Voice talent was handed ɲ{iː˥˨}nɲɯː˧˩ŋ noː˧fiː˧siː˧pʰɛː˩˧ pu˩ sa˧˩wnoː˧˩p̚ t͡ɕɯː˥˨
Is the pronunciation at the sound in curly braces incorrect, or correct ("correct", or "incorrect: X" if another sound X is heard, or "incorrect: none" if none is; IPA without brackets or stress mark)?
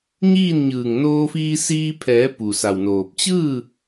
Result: correct